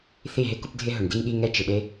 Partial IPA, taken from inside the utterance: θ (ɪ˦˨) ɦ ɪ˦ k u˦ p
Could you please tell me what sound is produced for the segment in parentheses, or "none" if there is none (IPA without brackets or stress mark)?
i˦˨